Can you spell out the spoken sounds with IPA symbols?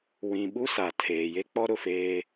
w ĩ˨ ɓ u˦ s a˨ tʰ eː˨ j e˦ k͡p ɔ˦ ɾ ʊ˨ f eː˦

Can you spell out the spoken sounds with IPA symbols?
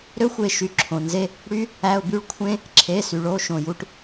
ɾ ø˦ xʷ e˧˩ ʃ y˧˩ ǁʰ õ˩ n z e˦ | ɽ y˦ | æ˩˧˩ ʊ̯ b y˦ ɭ kʷʰ ẽ˦ | ǁʰ e˩˧˩ s y˩ ɭ o˩˧˩ ʃ õ˧˩ j u˦ ʈ

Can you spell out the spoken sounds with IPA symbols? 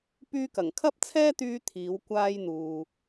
p yː˥ k ɐ˨˩ ŋ kʰ ɐ˥ p̚ t͡sʰ ɛː˥ t̪ yː˧ t̪ʰ iː˨˥ w kʷ aː˥ j n̪ uː˨

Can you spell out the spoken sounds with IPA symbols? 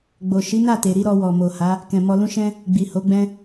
ɡ͡b o˨ ʃ i˨˦ n a˦˨ t e˨ ɾ i˧ ɾ ɔ˧ w ɔ˨ m o˨ h a˨˦ | k ɛ̃˨ m ɔ˧ l ũ˦ ʃ ɛ̃˦ | ɡ͡b i˨ h o˨˦ ɡ͡b ɛ̃˦

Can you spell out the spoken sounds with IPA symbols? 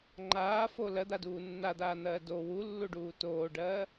ŋ͡ǃ aː f o l ɜ d̪ a d uː nː a d̪ aː n̪ ɜː d o w u lː u ɖ uː t oː ɖ ɜː

